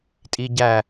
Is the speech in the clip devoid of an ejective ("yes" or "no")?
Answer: no